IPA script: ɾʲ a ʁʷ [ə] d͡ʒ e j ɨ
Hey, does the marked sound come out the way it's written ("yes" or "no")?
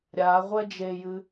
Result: no